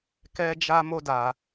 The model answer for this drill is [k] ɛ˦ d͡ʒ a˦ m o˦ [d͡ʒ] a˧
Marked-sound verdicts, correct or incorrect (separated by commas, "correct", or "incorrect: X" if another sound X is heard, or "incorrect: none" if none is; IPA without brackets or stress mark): correct, incorrect: d